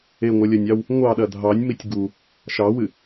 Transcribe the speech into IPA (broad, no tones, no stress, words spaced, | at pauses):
eŋʷɐlʲɐnʲɑw | ŋʷɑɗɐ dʱɑnʲmitʲ ɡu | ʃɑwɨ